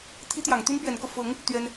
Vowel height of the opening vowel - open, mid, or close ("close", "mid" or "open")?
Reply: close